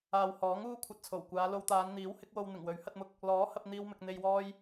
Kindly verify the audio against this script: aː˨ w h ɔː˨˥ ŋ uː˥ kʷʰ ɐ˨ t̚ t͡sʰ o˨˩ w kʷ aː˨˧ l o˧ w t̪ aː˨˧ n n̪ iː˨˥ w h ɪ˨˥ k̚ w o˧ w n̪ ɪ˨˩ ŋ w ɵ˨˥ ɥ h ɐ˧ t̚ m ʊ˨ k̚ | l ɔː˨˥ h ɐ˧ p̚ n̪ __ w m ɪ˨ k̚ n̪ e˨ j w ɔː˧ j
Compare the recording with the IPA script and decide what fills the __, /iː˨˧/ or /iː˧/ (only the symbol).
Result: iː˧